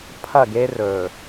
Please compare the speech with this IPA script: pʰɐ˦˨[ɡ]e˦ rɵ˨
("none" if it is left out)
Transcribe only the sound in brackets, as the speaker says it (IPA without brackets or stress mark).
ɡ